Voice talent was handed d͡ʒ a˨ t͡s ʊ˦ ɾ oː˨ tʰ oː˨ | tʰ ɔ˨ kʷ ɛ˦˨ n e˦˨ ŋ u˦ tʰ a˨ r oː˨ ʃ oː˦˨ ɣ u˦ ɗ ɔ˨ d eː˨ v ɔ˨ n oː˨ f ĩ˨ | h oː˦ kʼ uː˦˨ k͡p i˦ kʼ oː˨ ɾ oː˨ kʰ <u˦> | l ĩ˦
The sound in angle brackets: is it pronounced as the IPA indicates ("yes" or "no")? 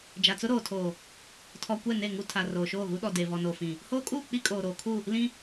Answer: no